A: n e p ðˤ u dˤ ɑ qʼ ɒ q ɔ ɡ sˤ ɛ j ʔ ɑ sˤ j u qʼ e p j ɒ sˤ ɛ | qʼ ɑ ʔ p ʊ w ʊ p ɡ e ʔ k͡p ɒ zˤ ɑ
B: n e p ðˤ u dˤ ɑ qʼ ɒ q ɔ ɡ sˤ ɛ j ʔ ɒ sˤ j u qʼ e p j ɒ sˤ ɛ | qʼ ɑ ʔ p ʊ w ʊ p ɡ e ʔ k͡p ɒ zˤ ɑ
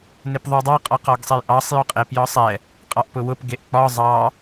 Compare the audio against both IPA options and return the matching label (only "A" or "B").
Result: A